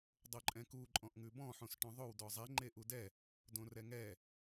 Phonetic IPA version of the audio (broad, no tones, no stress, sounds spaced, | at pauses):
dˤ o ǃʼ ɛ̃ k u ǃʼ ɔ̃ ʔ ŋ ʉ b ɔ̃ ħ õ s ʈ ɔ̃ ðˤ o w d ɔ zˤ ɛ ŋ͡ǃ e ʔ u d ɛ | d õ r ɛ ŋ ɛ